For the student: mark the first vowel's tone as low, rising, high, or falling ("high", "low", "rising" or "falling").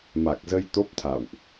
low